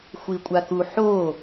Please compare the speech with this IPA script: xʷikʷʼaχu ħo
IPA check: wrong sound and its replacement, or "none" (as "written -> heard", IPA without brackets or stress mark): χ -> k